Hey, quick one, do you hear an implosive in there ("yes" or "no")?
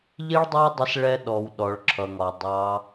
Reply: yes